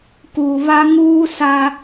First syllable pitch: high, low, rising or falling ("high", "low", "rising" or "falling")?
low